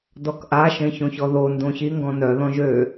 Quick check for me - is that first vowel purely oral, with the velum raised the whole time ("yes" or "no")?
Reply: yes